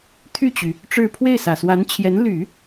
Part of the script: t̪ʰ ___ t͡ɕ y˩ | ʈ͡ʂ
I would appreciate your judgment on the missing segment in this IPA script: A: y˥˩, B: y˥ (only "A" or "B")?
A